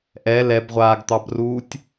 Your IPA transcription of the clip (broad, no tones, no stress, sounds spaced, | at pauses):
ʔ ɛ l ɛ b ʁʷ aː ɡ t̪ ɑ b r uː tʲ